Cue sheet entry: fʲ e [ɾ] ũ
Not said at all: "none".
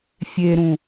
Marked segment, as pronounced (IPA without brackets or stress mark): ɾ